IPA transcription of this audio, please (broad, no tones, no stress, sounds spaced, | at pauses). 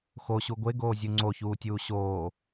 x o ɕ u ɡʷ e ɡ oː zʲ u ŋ͡ǀ o ç uː tʲ uː ɕ oː